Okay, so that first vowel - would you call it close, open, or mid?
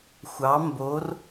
open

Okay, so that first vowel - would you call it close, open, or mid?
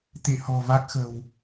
close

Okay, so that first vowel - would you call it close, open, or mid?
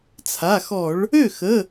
open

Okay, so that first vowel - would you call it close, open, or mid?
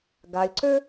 open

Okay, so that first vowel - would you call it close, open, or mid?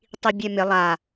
close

